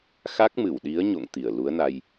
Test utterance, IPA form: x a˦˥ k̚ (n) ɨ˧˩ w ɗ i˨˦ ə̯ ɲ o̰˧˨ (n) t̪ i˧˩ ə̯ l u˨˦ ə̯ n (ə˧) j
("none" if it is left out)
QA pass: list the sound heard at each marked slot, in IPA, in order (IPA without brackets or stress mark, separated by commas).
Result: m, ŋ, a˧